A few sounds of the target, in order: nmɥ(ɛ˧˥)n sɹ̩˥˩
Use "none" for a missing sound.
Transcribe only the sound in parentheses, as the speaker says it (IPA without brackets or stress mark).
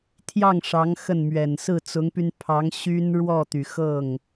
ɛ˨˩